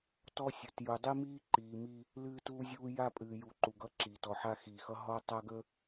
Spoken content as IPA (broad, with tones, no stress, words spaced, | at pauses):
tɔ˦sʲə˨t ju˨dˤi˦miː˦ǃiː˨ mi˦ | lɨː˦tuː˦zʲuː˦ ja˦pʼɨː˨ju˨ ǃu˨ɡʌ˦ǁiː˨t ɔ˨ħa˦xiː˨xʌ˦ ɦɔ˦tˤa˦ɡə˦